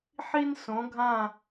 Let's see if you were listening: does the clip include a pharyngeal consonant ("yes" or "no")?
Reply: yes